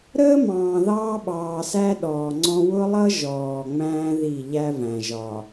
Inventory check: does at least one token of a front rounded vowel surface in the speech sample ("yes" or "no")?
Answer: no